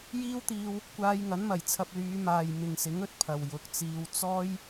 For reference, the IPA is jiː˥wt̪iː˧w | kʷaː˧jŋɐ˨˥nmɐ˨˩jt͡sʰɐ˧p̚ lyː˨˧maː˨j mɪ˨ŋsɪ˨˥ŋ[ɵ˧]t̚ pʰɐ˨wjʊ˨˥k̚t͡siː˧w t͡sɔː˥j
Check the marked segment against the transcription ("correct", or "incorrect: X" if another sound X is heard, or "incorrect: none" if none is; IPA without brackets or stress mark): correct